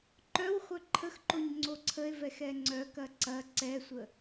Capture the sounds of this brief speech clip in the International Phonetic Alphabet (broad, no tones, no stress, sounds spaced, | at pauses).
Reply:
ǃ œ w χʷ œ ǃʰ ə x ǃ o ɲ ŋ͡ǀ o ǀʰ ə e̯ v ɛ x ɛ ŋ͡ǀ œ k ɐ ǀ ɐ ǀ ɛ sʷ ə